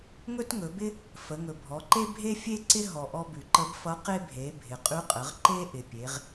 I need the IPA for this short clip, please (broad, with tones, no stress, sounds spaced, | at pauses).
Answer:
ŋ ɵ˥ t ŋ ɵ˩˧ b ɪ˥ | f ə˩˧ ŋ ɵ˩ bʱ ɔ˩˧ ǃ e˥ bʱ e˥ fʲ e˥ ǀ ɪ˥ ɦ ɔ˩ ʔ ɔ˧ b ʉ˩ ǃ ə˧˥ b f ʌ˧˥ q e˥ bʱ e˩˧ bʱ ɪ˩ qʼ ʉ˧˥ qʼ ə˩˧ ʁ ǃ e˥ ʔ ɪ˩ pʲ e˩˧ ʁ